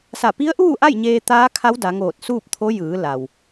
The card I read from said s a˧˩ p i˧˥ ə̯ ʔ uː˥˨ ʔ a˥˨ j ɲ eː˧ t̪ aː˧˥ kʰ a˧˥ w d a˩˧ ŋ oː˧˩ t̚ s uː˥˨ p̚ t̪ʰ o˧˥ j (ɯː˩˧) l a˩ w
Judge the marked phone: correct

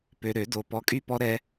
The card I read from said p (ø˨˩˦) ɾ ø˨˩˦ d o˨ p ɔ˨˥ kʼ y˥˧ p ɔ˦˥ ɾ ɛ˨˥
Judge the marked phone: incorrect: ø˨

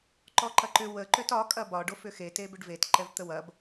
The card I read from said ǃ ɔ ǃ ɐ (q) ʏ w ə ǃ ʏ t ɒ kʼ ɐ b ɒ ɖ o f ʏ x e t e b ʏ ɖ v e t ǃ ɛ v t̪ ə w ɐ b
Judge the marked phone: incorrect: ǃ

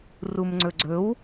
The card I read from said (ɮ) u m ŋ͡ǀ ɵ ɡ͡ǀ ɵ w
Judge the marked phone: incorrect: r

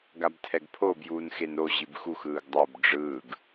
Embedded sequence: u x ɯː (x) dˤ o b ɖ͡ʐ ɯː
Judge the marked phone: incorrect: ɡ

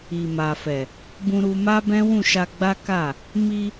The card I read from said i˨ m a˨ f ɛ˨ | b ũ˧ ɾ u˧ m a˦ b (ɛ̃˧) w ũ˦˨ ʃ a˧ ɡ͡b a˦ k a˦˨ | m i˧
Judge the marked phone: incorrect: ɛ̃˦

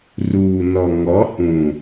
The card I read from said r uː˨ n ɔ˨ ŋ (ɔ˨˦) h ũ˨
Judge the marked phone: correct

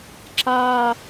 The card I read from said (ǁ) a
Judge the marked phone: correct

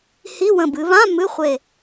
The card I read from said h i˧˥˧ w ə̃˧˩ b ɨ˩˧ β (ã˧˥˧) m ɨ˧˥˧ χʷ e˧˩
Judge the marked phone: correct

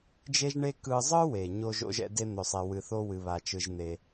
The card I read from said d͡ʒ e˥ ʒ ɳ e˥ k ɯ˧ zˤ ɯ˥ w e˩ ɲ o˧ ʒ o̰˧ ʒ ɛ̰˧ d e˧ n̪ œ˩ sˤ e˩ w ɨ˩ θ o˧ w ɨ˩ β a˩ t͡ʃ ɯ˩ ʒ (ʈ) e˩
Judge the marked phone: incorrect: n̪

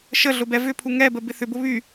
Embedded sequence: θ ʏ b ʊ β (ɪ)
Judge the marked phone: incorrect: y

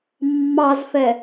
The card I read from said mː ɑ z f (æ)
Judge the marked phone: incorrect: ɛ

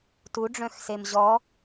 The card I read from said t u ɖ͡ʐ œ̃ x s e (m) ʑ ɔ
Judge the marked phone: correct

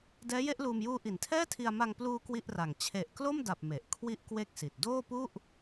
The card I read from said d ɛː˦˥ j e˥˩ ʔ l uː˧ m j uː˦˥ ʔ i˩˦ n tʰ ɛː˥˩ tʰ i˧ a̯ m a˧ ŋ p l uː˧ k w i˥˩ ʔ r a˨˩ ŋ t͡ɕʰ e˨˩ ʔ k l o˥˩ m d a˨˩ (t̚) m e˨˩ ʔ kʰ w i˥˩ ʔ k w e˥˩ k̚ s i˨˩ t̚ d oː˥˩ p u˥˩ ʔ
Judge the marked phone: incorrect: p̚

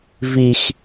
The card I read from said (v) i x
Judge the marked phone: correct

